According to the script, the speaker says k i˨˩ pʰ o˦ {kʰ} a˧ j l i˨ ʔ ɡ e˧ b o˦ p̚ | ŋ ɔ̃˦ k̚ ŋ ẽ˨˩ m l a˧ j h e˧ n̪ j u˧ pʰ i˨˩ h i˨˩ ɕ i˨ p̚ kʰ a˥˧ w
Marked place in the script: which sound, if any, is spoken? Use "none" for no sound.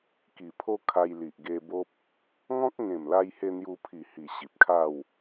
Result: kʰ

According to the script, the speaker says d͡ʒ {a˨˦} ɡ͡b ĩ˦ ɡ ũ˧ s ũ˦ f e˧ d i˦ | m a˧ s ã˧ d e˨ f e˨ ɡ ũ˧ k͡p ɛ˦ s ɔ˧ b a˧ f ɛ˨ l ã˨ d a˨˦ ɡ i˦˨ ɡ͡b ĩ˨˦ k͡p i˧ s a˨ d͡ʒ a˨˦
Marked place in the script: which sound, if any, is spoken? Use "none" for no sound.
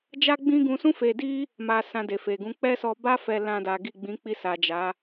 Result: a˦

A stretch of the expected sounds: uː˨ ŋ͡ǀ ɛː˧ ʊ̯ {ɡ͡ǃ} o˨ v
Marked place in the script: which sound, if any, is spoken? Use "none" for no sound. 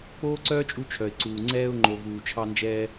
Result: ŋ͡ǃ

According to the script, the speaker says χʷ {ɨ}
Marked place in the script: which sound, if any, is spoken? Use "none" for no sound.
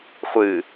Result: ɨ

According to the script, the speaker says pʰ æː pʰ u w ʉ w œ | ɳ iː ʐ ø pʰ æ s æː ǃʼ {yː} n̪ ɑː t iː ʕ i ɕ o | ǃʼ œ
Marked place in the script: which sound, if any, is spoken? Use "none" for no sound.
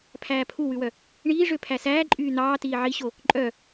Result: yː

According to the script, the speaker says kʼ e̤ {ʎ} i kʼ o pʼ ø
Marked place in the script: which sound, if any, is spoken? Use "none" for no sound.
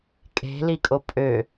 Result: l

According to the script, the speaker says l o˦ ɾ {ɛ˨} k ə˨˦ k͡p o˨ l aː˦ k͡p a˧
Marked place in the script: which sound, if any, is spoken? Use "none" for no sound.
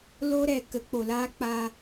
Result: ɛ˨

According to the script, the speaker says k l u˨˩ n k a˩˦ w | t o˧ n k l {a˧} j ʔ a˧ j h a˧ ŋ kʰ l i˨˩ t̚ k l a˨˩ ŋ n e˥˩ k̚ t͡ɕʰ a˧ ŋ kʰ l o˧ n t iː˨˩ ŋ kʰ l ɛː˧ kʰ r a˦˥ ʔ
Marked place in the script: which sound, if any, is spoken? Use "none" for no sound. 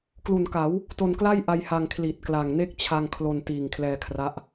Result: a˥˩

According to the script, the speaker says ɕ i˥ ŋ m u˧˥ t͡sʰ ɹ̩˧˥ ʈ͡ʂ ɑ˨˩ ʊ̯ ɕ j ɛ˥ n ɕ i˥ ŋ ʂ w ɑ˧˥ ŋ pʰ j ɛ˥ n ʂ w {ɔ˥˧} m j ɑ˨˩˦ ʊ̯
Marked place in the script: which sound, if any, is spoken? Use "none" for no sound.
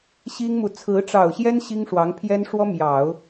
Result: ɔ˥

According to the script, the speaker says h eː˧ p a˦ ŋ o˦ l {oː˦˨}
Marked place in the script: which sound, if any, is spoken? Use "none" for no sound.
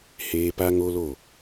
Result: o˦˨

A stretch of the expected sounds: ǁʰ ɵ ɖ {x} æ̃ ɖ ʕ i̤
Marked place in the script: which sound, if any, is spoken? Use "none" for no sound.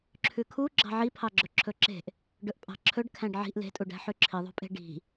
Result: kʰ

